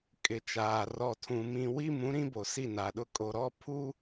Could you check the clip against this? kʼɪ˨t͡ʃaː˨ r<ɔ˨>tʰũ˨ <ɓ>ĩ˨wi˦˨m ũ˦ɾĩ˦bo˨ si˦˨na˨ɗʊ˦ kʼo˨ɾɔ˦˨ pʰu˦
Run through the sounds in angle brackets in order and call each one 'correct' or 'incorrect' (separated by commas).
correct, incorrect